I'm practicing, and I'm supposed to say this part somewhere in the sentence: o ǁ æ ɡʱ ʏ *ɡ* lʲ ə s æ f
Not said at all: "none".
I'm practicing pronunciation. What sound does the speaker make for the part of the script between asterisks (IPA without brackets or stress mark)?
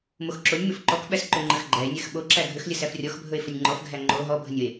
x